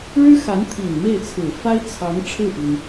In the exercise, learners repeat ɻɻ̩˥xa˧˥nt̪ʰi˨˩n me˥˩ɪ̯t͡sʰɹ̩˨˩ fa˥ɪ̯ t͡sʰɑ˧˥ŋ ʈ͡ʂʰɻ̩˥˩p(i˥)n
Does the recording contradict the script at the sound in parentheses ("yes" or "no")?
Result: yes